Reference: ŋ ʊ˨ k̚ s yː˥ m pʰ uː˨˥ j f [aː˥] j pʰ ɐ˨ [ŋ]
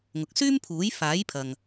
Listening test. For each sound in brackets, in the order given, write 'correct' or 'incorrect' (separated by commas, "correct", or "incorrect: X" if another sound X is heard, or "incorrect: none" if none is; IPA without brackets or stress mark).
incorrect: aː˨˥, correct